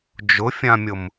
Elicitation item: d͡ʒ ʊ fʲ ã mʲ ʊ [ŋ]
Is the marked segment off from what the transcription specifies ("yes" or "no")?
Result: yes